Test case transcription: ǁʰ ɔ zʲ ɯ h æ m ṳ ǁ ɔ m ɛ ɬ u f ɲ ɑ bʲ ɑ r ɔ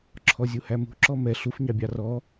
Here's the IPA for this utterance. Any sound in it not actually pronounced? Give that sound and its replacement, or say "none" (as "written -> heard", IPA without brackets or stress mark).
ɯ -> u